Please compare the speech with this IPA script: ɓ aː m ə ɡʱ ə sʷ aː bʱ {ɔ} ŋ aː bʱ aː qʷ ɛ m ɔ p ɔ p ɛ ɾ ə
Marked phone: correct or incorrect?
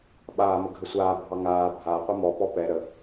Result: incorrect